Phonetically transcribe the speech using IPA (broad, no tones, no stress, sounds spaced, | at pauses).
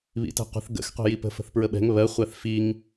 β ḭ t ɛ̤ qʷ ə̤ θ ɡ ə̰ x qʷ ɛ̤ j i p ə̤ f ə̤ θ p ɹ ə ɓ ɛ̤ ŋ β ɜ χʷ æ θ f i ŋ